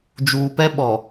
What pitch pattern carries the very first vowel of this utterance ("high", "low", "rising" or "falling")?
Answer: low